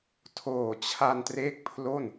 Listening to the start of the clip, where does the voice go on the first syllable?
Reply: low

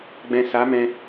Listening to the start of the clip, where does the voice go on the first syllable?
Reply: low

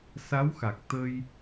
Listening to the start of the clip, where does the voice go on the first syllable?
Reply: rising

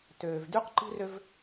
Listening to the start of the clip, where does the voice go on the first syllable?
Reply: low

